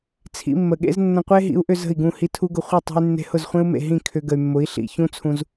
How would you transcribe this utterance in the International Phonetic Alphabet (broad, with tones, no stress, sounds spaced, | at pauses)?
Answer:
t͡sʰ ḭ˧ mː ə˨ ɠ ḛ˦ z nː ə̃˧ qʷ e˦ ɦ ḭ˨˦ u̯ ʔ ʏ˧ z ə̤˦˨ i̯ ɡ ũ˦˨ h i˦ tʰ u˦ ɡ ʊ˧ χʷ ə˦˨ tˤ ṳ˧ y̯ nː e̤˧ h ʊ˦˨ z χʷ ẽ˦ u̯ m ḛ˨ ɦ ĩ˦˨ kʰ ʏ˧ ɡ ə˨ y̯ mː ʊ˨˦ i̯ ɬ ḭ˧ ç ũ˦ t͡sʰ ũ˧ z